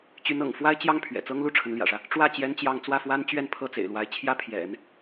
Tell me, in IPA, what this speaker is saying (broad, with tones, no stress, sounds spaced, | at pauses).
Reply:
t͡ɕ y˧˥ n ɤ̰˨˩ ŋ f w a˥ ɪ̯ t͡ɕ j ɑ˥ ŋ pʰ ɥ ɛ̰˨˩ t͡s ɤ˥ ŋ l u˥ ʈ͡ʂʰ ə˧˥ n l j ä̰˨˩ ʂ ä˦ | ʈ͡ʂ w ä˥˩ t͡ɕ j ɛ˥ n t͡ɕ j ɑ˥˧ ŋ t͡s w ä˥˩ f w a˥ n t͡ɕ ɥ ɛ˥˧ n pʰ ɤ˥˩ t͡s ḛ˨˩ ɪ̯ l w a˧˥ ɪ̯ t͡ɕʰ j ä˥˩ pʰ j ɛ̰˨˩˦ n